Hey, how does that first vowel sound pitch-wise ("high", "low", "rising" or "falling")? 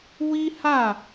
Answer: high